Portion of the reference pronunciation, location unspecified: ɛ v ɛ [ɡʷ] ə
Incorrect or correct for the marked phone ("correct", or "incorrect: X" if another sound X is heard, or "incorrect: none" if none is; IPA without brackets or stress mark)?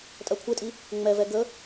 incorrect: ɡ